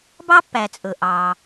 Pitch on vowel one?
high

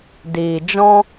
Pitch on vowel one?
low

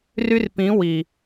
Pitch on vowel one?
high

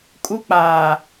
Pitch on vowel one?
high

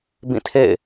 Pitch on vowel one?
falling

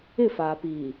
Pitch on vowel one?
falling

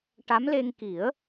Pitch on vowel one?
rising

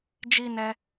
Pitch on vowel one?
high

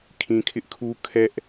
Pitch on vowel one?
low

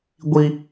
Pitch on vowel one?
high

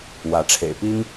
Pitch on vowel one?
rising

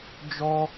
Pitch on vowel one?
high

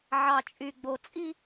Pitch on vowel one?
low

